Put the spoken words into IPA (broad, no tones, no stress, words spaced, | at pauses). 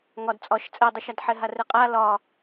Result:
ŋɒd t͡sʼɒʃ t͡sʼɛdˤɛʃad ħɛɦarɛqʼa lɒ